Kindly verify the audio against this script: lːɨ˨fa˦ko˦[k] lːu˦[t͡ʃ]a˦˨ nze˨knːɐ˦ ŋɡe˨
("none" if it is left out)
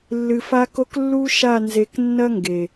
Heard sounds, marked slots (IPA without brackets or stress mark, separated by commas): k, ʃ